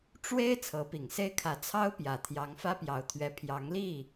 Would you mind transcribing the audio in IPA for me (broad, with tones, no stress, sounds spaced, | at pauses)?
ʈ͡ʂ w e˥ ɪ̯ t͡sʰ ɤ˧˥ p i˨˩ ŋ s e˥ ɪ̯ kʰ ä˧˥ t͡sʰ ɑ˥ ʊ̯ p j ä˨˩ t̪ʰ j ɑ˧˥ ŋ f ä˥ p j ɑ˧˥ ʊ̯ t̪ʰ ɥ ɛ˧˥ pʰ j ɑ˧˥ ŋ l i˥˩